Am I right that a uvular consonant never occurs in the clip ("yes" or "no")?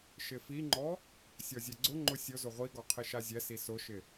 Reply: no